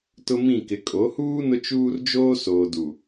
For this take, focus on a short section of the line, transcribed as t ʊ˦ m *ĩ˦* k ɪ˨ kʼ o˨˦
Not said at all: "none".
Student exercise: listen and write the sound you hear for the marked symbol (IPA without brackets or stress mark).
ĩ˦˨